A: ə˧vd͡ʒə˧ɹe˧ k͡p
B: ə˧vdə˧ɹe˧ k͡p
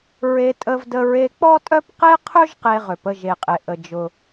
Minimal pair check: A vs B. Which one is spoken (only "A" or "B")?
B